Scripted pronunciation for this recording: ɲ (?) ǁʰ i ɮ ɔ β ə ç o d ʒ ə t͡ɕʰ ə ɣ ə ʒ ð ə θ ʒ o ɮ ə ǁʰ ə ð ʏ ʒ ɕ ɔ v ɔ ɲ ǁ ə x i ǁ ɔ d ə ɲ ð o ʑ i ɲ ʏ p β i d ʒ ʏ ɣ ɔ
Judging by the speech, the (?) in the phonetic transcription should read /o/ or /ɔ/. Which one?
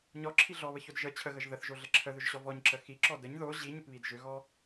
ɔ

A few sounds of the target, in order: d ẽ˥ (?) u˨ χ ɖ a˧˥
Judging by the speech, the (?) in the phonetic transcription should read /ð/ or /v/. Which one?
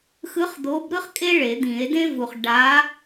v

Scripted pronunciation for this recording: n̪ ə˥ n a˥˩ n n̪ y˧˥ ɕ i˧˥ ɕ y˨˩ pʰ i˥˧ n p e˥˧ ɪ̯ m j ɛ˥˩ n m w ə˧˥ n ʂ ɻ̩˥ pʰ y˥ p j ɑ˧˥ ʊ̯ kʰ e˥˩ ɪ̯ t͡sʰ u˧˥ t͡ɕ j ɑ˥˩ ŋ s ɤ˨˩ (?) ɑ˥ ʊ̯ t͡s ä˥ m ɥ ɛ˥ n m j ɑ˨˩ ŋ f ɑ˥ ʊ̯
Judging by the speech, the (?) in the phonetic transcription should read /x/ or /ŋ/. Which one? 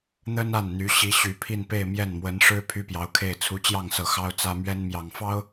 x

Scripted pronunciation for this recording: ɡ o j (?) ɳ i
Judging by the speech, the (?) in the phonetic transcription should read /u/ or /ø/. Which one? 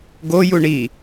u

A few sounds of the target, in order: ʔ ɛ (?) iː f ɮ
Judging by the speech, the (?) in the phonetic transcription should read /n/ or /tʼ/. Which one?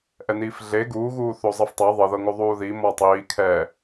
n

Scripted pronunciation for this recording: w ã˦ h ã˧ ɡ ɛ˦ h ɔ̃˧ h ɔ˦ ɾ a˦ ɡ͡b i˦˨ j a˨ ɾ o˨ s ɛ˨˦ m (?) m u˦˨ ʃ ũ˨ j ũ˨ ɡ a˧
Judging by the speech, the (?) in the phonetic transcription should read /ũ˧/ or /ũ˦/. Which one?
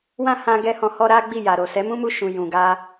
ũ˦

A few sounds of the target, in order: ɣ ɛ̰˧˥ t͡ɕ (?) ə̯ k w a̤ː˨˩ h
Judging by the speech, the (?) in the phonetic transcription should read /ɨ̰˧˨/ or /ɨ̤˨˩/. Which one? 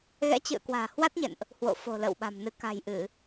ɨ̰˧˨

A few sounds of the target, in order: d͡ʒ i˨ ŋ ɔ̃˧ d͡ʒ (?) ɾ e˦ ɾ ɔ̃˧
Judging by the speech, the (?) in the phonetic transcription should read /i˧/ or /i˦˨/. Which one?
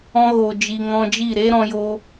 i˦˨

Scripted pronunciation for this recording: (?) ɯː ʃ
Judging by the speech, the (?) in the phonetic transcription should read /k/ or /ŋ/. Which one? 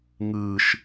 ŋ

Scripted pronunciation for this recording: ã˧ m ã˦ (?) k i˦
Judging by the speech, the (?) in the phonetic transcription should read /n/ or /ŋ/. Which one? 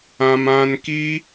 n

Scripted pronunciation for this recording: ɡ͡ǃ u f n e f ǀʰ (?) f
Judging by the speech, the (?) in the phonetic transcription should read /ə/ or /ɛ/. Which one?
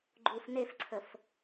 ə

